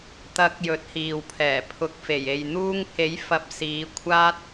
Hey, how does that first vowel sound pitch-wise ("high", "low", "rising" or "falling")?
rising